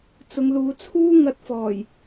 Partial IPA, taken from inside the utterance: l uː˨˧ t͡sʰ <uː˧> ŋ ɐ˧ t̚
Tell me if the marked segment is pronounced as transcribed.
no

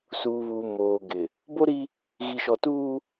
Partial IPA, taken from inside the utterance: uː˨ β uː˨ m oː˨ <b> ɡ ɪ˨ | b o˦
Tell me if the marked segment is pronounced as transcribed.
no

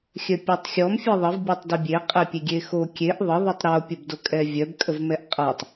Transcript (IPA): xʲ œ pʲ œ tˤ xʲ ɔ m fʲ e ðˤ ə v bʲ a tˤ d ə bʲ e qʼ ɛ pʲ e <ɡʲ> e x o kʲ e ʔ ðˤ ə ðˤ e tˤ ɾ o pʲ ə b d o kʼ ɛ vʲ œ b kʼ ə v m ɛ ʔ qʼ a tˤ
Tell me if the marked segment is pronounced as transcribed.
yes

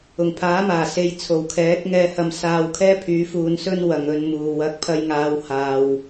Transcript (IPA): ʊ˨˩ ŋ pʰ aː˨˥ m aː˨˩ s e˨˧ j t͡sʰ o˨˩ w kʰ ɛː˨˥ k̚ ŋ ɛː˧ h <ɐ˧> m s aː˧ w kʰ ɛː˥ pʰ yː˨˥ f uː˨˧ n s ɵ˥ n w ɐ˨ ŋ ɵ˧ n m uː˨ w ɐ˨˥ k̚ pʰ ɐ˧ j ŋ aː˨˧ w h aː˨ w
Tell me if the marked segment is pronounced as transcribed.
yes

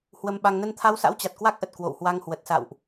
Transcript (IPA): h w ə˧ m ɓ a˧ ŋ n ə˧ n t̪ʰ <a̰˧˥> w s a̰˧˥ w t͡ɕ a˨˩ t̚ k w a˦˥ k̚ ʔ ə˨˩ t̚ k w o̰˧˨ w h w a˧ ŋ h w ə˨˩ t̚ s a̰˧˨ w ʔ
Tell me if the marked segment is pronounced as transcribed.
no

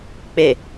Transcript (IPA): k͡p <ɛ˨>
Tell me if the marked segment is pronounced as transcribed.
no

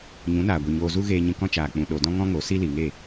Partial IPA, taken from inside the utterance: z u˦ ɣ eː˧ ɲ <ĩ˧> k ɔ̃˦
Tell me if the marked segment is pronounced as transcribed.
yes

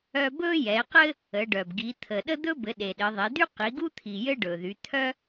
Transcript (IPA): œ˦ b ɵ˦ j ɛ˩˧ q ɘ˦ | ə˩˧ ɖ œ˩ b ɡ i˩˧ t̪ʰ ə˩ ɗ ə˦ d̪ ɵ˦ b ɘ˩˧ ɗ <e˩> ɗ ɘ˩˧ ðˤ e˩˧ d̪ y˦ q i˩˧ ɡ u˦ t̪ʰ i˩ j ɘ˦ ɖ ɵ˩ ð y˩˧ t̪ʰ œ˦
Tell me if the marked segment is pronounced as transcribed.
yes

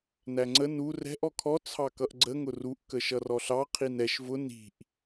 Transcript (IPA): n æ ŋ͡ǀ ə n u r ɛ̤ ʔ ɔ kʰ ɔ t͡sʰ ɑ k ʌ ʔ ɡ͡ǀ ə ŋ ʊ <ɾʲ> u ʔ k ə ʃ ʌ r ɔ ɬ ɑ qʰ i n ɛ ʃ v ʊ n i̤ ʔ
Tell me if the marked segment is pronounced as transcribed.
no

